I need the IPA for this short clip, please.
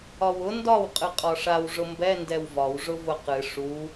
ɒ w ʊ n d ɒ w qʼ ɨ qʼ ɒ ʂ a w ʐ ʊ m b ɛ n d ɛ w v ɒ w ʐ ʊ v ʊ q ɨ ʂ u

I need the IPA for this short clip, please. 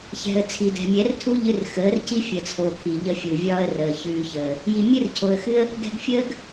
ç ɛ̤˨ ə̯ t͡sʰ i˨ d ɛ̤˨ mʲ ɛ˨˦ r tʰ u˦ ʎ ɨ˧ r x əː˨˦ r c i˦ fʲ ə˨ t͡sʰ o˨ kʰ i˨ ʎ ə˧ fʲ u˨ vʲ ɒː˦ ə̯ r əː˨ ç ʉː˧ ç əː˨ | j i˨ mʲ ɨ˦ r cʰ o˨ ə̯ x ɨ˦ ə̯ | ɡ ɛ̤˧ ɡ fʲ əː˦ ɡ

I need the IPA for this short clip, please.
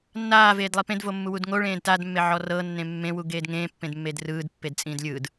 nː aː v eː d lˠ i p ẽ d v o mː u w u d ŋ o ɭ ẽː d t a d mː e ʕ ɔ r ɤ nː ẽ mː ẽ w u ɡ eː d ŋ ẽː pː ẽ d mː e d r ɯː d pː e d t͡sʼ ĩː d lʲ ɯː d

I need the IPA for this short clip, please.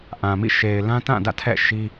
ʔ ã˨ m ḭ˦˨ ʃ e˨ ɪ̯ l ã˦ t ã˦˨ d ä̰˦˨ tʰ ɛ̰˦˨ ʃ i˦

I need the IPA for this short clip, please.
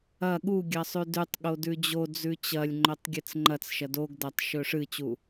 ɐ ɠ u ɡʲ ɐ sˤ ʉ d ʉ tˤ ɠ o d ʉ d͡ʑ o d͡z ʉ t͡ɕ ɐ lʲ ŋ͡ǃ ɵ tˤ ɡʲ ɨ t͡s ŋ͡ǃ ɐ t͡s ʃ ɐ d o ɡ d ɐ tˤ ʃ ɵ ʂ ɨ t͡ɕ u

